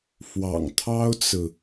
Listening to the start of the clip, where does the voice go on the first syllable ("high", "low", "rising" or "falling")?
low